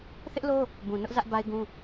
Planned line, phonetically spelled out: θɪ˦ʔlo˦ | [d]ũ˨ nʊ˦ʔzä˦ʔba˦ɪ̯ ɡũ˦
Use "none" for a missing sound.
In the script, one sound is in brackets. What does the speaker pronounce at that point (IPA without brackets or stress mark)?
b